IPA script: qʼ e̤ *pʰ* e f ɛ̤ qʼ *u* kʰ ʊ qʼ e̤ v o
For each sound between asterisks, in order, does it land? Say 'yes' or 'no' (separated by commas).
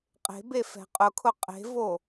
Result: no, no